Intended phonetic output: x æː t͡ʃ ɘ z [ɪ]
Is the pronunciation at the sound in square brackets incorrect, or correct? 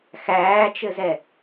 incorrect